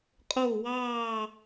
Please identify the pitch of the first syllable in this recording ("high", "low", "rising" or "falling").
falling